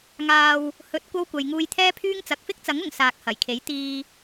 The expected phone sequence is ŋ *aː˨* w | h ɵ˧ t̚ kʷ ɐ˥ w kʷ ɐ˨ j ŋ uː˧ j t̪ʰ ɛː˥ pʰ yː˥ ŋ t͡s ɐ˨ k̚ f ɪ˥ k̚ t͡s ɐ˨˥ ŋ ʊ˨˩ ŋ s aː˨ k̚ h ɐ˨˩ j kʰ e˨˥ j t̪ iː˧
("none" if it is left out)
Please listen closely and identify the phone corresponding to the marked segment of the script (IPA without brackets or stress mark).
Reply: aː˧